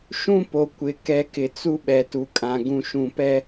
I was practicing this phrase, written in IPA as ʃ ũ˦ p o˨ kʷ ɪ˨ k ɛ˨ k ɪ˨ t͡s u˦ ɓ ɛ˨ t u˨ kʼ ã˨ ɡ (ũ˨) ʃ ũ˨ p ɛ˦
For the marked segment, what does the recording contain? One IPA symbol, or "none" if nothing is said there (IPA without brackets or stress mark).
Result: ũ˨